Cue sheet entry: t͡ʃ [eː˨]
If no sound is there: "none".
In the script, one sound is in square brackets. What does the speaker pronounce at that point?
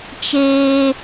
eː˦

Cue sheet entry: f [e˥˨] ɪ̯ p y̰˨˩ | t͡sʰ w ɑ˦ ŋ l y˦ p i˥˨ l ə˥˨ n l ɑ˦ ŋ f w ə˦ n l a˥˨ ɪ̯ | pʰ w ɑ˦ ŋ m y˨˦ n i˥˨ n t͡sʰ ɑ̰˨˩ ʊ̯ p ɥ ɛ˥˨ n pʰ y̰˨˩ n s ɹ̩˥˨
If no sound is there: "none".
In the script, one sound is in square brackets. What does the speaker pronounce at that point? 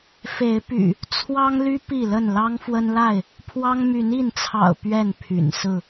e˨˦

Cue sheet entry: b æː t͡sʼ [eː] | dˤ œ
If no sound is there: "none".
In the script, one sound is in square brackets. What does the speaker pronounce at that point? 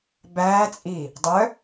iː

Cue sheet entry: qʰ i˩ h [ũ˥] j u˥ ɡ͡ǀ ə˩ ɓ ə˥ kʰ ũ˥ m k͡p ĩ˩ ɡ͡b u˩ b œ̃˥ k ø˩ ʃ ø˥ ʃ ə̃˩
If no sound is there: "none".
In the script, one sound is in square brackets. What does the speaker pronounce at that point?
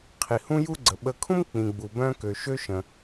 ũ˥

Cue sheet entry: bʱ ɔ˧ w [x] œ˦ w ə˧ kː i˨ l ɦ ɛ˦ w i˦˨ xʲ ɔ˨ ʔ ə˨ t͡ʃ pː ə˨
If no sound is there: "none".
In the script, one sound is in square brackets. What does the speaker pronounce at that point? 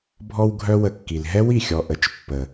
ɡʱ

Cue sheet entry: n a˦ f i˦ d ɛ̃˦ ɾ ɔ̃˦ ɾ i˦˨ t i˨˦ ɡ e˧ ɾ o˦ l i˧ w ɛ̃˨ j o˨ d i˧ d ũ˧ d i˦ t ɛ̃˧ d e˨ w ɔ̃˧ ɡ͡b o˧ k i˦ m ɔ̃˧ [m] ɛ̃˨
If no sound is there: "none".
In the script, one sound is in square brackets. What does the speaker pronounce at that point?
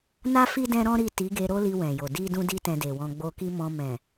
m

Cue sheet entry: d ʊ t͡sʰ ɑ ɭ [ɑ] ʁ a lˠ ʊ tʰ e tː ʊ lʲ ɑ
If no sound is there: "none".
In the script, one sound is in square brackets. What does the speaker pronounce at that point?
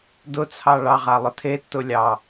ɑ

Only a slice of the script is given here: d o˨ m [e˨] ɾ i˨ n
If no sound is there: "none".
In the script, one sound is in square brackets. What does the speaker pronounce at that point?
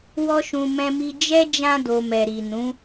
ɛ˨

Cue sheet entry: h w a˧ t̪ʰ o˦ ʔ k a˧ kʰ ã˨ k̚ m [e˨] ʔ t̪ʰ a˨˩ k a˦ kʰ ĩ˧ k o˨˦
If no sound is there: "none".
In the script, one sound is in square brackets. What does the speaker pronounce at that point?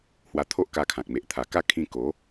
e˨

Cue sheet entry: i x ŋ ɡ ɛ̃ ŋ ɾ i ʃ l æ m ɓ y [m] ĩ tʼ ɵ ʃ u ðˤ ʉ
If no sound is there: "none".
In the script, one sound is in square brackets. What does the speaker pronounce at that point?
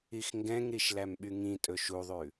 ŋ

